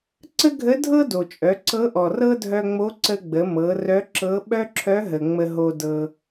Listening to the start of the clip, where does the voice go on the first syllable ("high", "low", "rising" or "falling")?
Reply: high